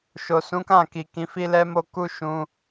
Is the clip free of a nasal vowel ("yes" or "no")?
no